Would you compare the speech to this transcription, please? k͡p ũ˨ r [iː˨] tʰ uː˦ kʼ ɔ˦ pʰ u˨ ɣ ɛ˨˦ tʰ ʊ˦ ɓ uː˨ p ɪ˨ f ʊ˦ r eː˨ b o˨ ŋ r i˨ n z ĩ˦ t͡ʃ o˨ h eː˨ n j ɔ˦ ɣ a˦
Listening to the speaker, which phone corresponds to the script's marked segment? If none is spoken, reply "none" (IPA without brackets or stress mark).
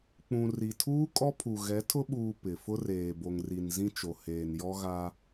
i˨